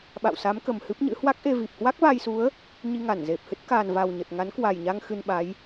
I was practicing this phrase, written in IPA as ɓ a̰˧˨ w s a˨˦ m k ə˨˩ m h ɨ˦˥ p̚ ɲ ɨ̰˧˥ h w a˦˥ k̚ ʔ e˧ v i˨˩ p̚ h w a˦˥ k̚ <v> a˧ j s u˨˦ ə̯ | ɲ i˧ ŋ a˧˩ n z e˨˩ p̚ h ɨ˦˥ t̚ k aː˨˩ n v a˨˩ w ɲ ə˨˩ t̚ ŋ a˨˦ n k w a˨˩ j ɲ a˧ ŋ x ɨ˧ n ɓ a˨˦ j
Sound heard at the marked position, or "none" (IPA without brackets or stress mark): v